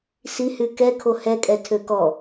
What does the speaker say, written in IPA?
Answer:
sihy kɛkʰo hɛkʼɛ tʰøkɔ

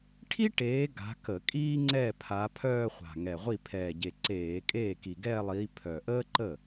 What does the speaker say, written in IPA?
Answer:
ʈʰi˥ʈeː˨˦ ɡa̤˨˦kə˧˩˧ kʼiː˥ŋ͡ǀɛ˥˩pʰa˨˦ pʰœː˥˧χʷa̤˨˩ ŋɛ˨˩ʁʷi˥˩ pʰɛː˨˩ɟe˨˩ǀeː˧˩˧ kʼeː˥˩ki˨˩ɡɛː˥˧lˠiː˨˦ pʰœ˨˩ʔəː˥ ǃə˥˩

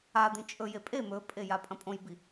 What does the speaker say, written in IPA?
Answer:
a d̪ĩt͡ʃʼɵje pʼe mɵpʼe japʼɐ̃pʼõjbi

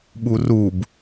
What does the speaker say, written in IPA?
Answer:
ɓurub

